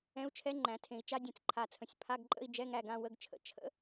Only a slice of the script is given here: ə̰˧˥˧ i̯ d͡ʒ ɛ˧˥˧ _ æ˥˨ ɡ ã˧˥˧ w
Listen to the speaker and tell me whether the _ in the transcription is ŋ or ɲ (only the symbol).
ŋ